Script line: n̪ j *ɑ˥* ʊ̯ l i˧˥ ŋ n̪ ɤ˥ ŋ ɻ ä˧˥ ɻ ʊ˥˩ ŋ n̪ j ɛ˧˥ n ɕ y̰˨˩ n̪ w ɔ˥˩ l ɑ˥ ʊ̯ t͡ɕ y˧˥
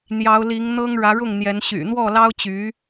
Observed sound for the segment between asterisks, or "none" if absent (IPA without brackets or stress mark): ɑ˧˥